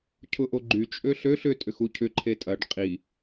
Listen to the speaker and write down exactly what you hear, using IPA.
cʰʊʔoɡ͡ǃy t͡ʃʼøɬøɬ ʏ tʼʏxucʰʏ ǃʰetʼɐɖ qʼi

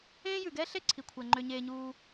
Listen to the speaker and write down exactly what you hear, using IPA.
ẽː˥jʉ˩ɡɛː˥ɬe˥ ǀʰi˩kʷʰɛ˩ ŋ͡ǃø˩ɲeː˩ɲuː˩

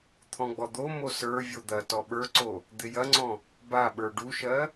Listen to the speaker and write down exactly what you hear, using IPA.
t̪ʰɔ̃ɡ͡bɔd̪omo sə˞ vʲod̪ɐtɔ ɓə˞ǀo | d̪ɪjɐŋ͡ǀɔ̃ | baɓə˞ ɖuʃɜ

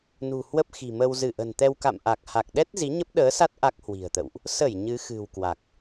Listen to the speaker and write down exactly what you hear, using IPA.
nṳ˨˩ hwə˦˥p̚xi̤˨˩mə˧w zɨ˧˩ʔə̤˨˩nt̪ɛ˧w ka̰˧˨mʔa˨˩k̚ha˨˩k̚ɗɛ˦˥t̚ zi˨˦ɲə˦˥p̚ɗəː˨˦sa˦˥t̚ ʔa˦˥k̚hwi̤˨˩ə̯t̪ə̰˧˨wʔ | sə˧˩j ɲɨ˨˦xɨ̤˨˩wkwa˨˩k̚

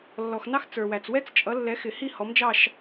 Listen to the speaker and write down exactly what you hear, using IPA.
lːɔ˨xnɑ˥xt͡sə˞˨wæ˨t͡s wɛ˥t͡st͡ʃʼʌ˨˥lːɛ˨˥ xɪ˨˩˦hi˥˧ hɔ˨˥md͡ʒɑ˥˧ʃ

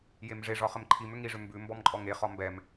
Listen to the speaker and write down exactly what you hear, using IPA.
jemʐeʐɒ χəmǃʰimʏ ŋiʐʏ mbʉ mbɔmǃʼɔŋeχɒ mbɛm

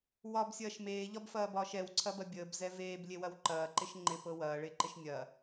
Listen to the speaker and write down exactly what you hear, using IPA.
wɒbsʲɐːʃ meːʎɒbfɐːbɒːʃ ɛwǀʰɐbɐ bʲəːbzɛ veːblʲewɐw ǃɐːǃɪʃ ŋ͡ǃɪpɤ wɐːɭeǃɪʃ nʲɐ

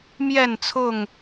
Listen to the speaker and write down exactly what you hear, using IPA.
mjɛ˥˨nt͡sʰʊ˥˨ŋ

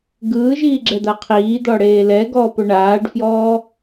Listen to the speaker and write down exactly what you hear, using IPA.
ɡɯːʒiːɡ͡ǁɛd̪a qʰiːd̪ɔɽeː lɛɡɔːpo ɳaːɖfjɔː

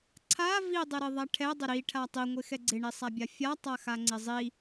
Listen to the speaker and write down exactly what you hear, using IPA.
ǀʰa vidˤɪɾɪðˤa ʈʰɛdˤɪ ɾiʈʰa tˤiŋʷɪ xɛɡ͡ǀɪɳi sˤabʲafʲa tˤaxaŋ͡ǀɪzˤi

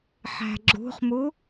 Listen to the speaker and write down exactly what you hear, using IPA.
ħæ̤ɡ͡ǁṳχmu

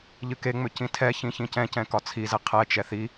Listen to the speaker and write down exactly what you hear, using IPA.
ʎɨkeŋ͡mʏ cĩtʰɛçĩ çĩcɛ̃cɛ̃ kɒt͡sʰize qʰɛt͡ʃɛ θi

